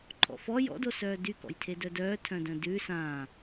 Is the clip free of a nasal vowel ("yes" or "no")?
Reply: no